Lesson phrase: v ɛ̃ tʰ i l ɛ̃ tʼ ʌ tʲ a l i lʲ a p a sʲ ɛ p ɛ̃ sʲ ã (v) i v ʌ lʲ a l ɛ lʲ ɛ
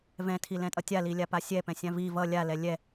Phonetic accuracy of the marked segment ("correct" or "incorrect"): correct